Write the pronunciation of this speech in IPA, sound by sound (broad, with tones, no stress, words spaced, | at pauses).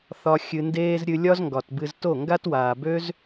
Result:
θɒ˧ xʲɨ˨ndeː˧z ɾʲɨ˧lʲɒ˦zŋɡɒ˨tbɨ˧z to˦˨ ŋɡa˦twaː˨bø˦z